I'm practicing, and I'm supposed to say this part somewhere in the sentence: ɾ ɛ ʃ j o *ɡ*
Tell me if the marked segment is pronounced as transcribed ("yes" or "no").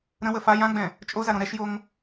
no